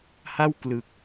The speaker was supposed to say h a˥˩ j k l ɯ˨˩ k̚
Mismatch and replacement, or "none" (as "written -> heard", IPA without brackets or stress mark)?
j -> w